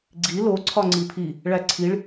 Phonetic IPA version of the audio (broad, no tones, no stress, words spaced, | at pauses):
ɡ͡ǀi lo ǀʰɒŋ͡ǀipʰi | ɭæǀʰiɭ